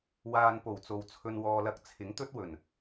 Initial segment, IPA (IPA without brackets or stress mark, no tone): w